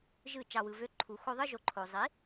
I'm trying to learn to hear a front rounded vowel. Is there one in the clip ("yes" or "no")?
yes